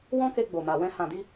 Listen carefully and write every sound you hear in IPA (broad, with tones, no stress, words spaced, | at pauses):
wɔ̃˦ke˧ ɡ͡bo˨ma˨wɛ̃˧ hã˨di˧